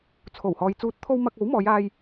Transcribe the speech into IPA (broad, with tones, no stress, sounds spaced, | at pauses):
t͡sʰ o˨˩ w h ɔː˨ j t͡s uː˨˥ t̚ t̪ʰ o˧ w m ɐ˧ k̚ o˨˥ w m ɔː˨˧ j aː˧ j